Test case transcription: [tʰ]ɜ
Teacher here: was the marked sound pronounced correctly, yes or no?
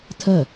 yes